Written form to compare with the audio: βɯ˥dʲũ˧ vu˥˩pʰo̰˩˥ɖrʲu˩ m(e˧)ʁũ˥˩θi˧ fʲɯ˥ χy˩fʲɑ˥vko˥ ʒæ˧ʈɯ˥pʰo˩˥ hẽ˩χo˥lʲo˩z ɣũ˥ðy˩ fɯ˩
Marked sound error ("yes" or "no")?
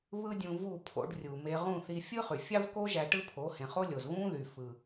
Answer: no